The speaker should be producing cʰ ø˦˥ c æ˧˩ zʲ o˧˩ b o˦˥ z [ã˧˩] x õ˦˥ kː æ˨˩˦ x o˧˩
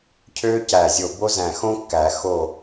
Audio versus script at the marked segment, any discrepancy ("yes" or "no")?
yes